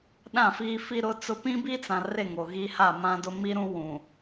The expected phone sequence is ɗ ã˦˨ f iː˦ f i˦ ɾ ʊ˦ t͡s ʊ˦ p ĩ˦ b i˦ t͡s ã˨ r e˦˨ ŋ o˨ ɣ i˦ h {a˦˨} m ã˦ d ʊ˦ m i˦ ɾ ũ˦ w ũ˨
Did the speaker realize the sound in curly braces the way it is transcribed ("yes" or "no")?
yes